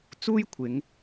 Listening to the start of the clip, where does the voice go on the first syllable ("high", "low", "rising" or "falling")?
high